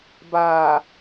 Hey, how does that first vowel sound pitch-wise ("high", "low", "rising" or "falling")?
low